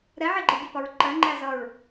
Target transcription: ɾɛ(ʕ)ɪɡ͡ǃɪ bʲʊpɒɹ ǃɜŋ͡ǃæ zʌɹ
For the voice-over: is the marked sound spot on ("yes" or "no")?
yes